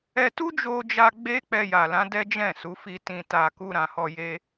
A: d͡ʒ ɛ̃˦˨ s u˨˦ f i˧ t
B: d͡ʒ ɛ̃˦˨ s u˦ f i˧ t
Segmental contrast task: A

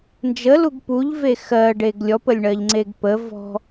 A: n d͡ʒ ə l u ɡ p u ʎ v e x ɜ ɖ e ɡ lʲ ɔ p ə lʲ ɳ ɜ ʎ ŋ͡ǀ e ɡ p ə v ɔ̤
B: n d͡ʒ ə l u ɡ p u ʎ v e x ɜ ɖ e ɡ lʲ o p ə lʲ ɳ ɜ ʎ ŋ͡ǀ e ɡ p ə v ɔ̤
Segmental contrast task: A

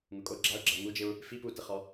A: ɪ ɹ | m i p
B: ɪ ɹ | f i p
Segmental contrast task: B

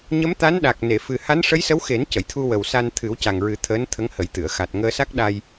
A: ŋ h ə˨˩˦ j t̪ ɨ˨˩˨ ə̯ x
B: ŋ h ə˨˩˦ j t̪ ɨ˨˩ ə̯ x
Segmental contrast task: A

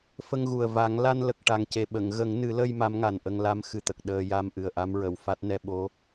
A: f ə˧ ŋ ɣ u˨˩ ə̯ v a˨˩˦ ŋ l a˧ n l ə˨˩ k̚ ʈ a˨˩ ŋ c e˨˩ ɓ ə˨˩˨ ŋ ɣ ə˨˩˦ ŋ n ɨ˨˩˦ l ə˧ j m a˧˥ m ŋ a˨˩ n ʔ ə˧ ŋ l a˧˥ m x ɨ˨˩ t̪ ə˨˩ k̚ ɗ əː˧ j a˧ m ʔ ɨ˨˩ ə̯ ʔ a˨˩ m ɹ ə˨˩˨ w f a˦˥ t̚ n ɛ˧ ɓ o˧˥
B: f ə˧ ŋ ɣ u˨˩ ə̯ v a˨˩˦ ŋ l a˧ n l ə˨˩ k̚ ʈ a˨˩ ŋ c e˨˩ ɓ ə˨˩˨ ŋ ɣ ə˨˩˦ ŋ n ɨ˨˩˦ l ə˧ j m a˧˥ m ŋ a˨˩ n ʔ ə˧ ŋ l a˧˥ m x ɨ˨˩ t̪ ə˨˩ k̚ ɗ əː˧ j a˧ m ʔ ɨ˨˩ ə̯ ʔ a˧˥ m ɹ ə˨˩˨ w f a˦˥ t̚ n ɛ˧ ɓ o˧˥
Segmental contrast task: B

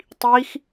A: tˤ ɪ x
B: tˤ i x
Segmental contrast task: B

